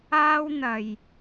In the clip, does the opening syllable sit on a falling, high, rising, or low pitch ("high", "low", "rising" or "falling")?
high